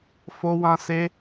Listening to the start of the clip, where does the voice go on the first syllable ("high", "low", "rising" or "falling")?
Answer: high